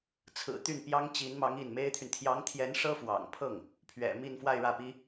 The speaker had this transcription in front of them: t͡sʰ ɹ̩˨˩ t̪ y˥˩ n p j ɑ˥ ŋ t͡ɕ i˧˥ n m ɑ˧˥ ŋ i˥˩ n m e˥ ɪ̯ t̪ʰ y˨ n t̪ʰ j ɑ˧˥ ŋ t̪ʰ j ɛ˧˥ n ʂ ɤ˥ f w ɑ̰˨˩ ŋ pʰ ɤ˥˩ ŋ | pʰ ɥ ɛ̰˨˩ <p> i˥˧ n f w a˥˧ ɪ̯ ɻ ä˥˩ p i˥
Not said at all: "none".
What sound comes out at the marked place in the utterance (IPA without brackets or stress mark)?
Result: m